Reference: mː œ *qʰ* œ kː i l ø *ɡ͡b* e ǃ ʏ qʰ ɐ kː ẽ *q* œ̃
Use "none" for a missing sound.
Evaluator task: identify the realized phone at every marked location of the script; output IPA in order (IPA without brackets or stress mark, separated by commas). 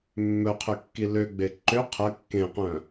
qʰ, ɡ͡b, q